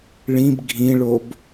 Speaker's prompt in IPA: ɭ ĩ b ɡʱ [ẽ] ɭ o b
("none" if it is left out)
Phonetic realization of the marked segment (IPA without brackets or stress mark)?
ĩ